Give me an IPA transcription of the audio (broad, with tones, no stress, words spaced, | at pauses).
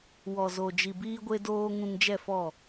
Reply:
wɔ˨zo˨ d͡ʒi˨biː˧ɡʷe˧doː˧ ŋũ˧ŋd͡ʒɛ˦˨fɔ˦˨